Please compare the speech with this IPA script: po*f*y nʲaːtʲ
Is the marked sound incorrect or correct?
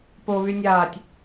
incorrect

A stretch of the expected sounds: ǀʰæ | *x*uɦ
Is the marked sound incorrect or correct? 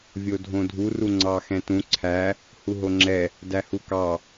incorrect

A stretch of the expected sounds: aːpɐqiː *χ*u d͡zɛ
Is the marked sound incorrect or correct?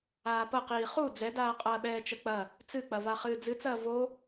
correct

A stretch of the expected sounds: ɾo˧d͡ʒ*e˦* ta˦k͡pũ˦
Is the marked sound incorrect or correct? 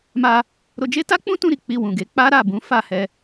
correct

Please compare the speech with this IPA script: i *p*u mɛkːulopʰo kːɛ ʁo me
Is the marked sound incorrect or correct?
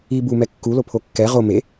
incorrect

